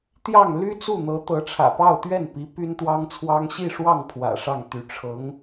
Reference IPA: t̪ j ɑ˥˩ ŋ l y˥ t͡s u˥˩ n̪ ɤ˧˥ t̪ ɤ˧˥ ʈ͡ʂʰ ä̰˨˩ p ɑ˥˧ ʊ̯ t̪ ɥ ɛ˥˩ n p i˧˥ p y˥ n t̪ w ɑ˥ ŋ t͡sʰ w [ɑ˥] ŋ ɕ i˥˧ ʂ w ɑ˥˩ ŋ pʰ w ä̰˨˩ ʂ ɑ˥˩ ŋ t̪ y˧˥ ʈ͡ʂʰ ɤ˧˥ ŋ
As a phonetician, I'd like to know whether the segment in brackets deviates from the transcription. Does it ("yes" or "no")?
no